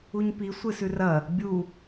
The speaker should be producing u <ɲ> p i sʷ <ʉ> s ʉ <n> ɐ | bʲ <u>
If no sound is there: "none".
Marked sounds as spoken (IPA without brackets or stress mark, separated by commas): ɲ, ɨ, r, u